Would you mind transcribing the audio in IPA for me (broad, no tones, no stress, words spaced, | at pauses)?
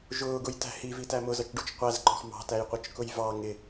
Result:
ʒʊːɡʊjtæ̤ hivitæ mʊzʌt͡ʃɖut͡ʃ qʷæzǃɔ̤x mɑ̤tæjqʷʌt͡ʃkʊj vɑ ŋɪ